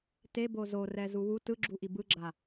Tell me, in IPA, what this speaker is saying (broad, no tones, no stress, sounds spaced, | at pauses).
t e b o z o r ɛ z u w u t ɯ ɡ͡ǁ u ʔ i b ɯ ɡ͡ǁ a